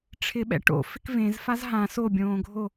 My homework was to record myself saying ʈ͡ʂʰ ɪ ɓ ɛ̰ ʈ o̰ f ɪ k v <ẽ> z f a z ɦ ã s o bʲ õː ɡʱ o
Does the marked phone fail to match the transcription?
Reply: no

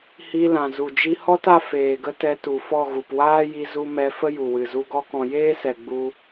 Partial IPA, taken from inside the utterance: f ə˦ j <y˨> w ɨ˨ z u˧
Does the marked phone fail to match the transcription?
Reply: yes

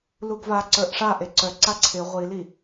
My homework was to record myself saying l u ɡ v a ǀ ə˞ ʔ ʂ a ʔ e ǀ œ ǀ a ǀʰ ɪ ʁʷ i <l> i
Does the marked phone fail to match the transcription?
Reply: no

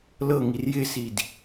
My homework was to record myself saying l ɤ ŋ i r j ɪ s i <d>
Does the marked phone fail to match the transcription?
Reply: no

